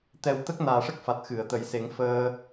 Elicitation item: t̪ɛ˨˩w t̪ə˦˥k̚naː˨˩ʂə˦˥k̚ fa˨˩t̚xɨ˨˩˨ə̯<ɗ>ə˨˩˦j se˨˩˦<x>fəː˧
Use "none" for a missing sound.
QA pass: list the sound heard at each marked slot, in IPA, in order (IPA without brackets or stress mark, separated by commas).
t̪, ŋ